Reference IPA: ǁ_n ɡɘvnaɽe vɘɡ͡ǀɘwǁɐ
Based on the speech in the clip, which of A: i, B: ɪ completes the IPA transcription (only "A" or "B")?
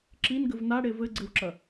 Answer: A